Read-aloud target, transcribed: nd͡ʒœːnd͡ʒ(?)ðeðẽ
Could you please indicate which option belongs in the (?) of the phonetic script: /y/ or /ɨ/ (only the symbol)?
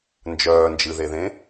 ɨ